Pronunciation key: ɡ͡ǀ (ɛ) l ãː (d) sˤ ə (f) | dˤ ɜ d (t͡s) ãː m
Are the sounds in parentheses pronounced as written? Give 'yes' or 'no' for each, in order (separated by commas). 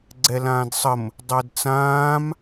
yes, yes, no, yes